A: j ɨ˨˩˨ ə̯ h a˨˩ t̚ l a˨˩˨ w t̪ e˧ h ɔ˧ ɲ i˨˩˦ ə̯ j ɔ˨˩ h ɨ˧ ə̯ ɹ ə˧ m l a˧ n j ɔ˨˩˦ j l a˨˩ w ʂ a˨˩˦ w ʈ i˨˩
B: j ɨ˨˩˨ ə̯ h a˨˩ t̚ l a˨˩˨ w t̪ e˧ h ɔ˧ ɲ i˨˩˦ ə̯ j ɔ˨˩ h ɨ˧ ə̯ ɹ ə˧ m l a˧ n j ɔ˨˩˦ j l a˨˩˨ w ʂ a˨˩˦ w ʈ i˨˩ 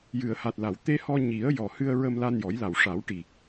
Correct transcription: A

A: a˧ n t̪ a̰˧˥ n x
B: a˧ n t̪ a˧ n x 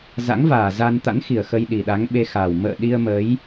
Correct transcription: A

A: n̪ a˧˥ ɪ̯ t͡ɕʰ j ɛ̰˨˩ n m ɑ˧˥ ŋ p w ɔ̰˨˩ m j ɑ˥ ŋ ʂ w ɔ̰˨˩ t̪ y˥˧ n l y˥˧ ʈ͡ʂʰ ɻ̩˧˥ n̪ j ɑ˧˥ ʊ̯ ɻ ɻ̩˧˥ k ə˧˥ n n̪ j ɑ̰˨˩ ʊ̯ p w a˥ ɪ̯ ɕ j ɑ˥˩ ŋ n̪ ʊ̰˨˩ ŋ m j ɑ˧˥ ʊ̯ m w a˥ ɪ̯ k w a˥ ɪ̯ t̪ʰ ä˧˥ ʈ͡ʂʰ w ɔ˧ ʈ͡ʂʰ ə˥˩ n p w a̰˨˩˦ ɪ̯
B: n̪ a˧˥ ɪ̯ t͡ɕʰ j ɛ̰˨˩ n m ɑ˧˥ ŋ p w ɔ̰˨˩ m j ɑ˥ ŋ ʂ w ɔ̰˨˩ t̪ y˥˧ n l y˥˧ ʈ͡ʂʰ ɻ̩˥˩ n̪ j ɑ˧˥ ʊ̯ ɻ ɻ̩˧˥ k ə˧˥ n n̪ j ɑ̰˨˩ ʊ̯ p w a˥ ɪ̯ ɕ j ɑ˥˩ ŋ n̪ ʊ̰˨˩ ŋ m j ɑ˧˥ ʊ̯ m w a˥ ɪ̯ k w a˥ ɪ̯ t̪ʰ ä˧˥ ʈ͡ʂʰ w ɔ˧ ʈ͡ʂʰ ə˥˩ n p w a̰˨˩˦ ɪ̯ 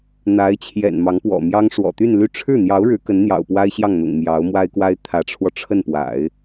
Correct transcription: B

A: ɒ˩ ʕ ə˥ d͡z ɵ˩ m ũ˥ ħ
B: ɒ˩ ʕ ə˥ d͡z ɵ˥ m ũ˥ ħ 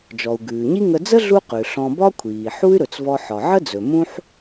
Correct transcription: A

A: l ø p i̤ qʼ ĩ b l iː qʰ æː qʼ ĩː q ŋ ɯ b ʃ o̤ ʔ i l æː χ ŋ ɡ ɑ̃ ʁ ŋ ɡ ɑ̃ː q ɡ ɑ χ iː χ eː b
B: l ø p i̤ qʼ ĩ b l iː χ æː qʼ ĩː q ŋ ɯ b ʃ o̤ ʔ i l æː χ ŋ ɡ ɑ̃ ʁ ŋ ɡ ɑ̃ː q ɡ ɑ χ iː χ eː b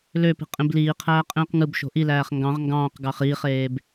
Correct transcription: A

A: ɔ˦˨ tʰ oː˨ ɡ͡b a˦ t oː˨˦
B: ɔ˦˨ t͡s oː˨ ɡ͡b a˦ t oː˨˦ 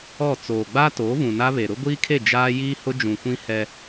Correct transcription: B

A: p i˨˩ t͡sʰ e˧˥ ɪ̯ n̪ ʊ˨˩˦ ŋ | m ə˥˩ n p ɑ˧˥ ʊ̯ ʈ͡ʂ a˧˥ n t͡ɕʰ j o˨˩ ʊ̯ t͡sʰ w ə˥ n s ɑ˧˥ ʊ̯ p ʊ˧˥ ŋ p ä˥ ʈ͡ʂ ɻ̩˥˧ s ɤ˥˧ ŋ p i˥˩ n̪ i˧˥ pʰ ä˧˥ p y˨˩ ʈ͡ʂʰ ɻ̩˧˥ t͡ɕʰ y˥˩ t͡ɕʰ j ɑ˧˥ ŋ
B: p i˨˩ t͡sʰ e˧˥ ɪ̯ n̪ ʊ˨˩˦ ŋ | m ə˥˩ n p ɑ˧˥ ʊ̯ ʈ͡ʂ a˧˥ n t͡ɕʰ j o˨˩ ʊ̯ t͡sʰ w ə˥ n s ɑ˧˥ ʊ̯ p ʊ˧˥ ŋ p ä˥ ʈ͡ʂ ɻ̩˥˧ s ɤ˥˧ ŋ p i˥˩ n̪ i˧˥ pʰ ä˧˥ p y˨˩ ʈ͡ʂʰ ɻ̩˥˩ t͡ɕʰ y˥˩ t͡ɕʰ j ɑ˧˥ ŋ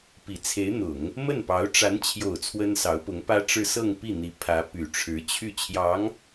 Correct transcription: A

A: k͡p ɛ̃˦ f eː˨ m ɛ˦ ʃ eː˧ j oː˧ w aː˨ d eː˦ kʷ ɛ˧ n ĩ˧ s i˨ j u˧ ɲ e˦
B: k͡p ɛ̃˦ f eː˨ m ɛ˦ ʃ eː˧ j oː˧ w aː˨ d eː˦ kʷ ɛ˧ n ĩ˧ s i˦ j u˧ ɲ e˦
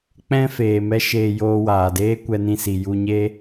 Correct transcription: A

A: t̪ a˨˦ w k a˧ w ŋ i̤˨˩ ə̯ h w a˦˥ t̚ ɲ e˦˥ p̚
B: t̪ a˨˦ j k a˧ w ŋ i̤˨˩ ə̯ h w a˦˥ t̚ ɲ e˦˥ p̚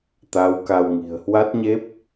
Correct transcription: A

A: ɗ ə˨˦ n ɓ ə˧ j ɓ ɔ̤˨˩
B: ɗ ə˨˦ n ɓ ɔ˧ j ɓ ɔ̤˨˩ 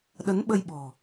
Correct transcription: A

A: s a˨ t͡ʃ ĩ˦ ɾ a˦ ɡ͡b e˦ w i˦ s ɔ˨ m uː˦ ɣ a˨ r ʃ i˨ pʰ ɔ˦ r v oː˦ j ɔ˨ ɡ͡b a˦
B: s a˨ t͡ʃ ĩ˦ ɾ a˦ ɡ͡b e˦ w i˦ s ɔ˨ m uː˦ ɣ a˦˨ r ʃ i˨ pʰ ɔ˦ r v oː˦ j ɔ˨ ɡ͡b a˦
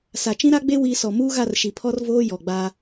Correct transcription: B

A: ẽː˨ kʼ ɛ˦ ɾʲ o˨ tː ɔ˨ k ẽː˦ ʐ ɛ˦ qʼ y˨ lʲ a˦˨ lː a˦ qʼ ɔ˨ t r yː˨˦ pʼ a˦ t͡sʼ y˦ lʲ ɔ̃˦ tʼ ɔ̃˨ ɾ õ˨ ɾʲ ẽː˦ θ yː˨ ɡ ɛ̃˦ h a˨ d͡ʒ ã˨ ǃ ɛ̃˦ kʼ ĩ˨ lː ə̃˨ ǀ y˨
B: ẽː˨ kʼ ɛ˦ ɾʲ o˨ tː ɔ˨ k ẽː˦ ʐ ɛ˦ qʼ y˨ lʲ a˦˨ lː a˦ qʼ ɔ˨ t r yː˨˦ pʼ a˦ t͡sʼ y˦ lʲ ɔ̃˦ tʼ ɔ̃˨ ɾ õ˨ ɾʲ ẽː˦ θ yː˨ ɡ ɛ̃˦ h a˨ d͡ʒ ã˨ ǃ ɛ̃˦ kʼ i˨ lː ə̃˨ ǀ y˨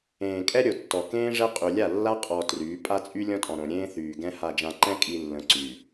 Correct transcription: B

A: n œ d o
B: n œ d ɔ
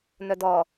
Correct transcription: B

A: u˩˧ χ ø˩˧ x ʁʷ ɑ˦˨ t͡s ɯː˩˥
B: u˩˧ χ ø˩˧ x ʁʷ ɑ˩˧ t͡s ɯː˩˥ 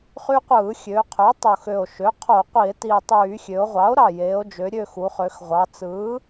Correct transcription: B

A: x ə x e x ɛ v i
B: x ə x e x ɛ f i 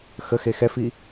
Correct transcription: B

